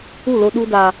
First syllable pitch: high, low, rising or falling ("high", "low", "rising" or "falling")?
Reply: falling